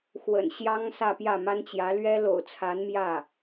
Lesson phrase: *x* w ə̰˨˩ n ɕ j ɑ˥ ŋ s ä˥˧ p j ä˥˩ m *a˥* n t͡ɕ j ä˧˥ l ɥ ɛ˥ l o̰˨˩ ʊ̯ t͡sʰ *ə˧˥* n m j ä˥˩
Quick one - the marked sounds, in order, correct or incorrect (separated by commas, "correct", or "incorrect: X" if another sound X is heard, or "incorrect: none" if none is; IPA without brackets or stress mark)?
correct, correct, incorrect: a˧˥